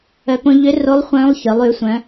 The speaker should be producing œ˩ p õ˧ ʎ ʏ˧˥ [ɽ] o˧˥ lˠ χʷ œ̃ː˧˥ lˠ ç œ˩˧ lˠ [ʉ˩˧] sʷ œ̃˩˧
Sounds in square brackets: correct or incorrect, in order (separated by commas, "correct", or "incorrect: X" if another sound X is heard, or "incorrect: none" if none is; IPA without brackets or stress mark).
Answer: incorrect: r, correct